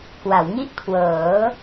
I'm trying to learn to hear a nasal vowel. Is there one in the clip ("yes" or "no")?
no